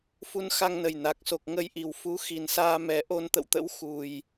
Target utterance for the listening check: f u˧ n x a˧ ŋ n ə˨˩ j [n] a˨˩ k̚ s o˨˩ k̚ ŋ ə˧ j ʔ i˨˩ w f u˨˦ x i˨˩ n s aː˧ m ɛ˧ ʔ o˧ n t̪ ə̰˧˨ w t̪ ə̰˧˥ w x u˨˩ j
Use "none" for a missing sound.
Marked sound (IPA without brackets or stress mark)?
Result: n